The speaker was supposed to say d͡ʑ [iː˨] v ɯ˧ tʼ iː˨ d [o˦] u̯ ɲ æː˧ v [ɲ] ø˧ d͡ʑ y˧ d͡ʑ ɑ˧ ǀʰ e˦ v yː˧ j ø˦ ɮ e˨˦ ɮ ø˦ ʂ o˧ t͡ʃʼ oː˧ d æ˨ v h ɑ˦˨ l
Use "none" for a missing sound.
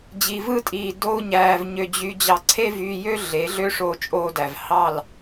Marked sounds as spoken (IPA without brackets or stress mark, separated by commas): i˨, o˦, ɲ